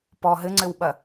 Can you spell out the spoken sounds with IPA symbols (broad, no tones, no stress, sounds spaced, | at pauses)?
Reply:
p ɔ ɦ ɘ ŋ͡ǀ ɘ w ɓ ɐ